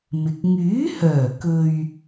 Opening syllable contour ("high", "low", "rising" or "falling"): low